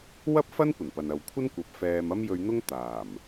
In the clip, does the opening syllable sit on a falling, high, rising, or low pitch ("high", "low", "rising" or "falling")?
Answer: high